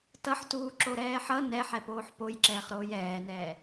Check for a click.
present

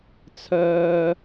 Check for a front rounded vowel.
present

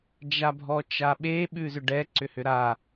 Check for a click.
present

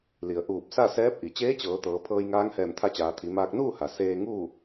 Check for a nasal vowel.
absent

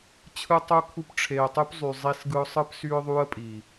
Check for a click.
absent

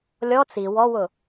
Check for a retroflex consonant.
absent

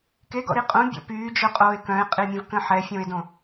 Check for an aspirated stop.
absent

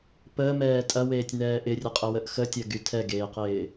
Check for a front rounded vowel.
present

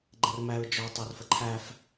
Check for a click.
present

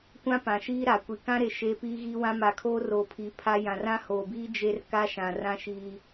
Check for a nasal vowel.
present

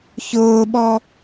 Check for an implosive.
present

